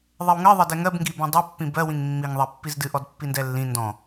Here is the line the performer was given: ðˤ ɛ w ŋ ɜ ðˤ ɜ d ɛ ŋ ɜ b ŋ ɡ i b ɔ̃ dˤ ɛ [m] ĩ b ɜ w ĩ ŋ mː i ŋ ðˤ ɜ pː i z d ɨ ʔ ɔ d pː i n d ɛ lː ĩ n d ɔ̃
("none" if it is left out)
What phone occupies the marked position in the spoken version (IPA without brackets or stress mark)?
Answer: pː